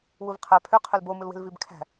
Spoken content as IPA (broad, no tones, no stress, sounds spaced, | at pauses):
w u v qʰ æ pʰ ø qʰ ø l b o m ɯ l w e̤ l v i b kʰ æ̤